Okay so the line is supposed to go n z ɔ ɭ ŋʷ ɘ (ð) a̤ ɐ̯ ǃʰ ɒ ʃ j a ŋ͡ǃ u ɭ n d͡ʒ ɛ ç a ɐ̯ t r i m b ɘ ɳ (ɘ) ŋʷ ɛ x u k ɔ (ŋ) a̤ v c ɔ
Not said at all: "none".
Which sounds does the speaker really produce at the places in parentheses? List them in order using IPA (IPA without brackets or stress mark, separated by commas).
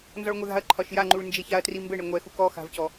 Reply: ð, ɛ, x